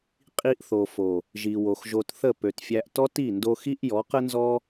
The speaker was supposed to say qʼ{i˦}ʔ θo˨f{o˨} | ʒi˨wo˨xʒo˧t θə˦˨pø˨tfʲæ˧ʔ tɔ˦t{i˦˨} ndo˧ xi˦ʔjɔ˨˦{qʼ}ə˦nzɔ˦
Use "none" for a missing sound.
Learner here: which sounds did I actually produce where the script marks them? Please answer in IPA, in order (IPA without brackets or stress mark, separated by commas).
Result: i˧, o˨, i˦˨, q